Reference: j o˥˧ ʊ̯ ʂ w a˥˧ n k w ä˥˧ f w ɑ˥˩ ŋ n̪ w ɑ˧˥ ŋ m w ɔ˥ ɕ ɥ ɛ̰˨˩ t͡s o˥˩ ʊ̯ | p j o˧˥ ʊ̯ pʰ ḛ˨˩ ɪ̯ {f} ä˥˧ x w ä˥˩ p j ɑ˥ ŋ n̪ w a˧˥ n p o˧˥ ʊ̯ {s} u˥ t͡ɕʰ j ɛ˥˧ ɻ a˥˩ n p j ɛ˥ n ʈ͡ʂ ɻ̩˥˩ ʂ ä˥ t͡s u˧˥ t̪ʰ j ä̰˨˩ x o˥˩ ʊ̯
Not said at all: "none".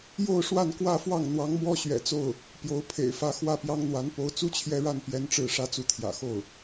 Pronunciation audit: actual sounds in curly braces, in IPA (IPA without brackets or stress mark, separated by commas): f, t͡s